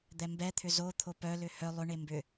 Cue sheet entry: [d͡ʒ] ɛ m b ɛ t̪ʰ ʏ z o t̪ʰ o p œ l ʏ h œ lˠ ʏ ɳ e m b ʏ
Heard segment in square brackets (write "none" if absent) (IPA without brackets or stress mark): d̪